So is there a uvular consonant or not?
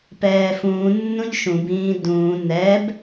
no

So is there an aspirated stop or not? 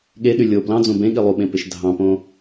no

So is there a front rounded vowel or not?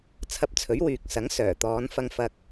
yes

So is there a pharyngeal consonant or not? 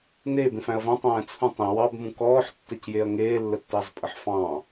yes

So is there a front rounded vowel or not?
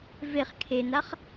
no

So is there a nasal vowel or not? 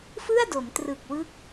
no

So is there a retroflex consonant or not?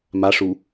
yes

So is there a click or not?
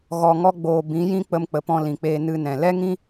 no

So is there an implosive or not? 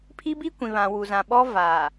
yes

